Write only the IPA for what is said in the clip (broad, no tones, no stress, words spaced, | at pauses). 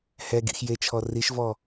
hɛ ɡḭxjet͡ʃʰɔ riʃvɔ